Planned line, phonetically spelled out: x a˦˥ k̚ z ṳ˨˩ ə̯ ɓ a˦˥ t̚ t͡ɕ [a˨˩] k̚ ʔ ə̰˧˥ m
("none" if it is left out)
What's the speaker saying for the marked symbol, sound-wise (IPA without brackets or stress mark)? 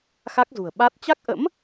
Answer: a˦˥